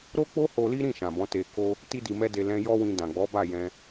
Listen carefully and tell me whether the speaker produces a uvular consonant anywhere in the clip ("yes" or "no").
no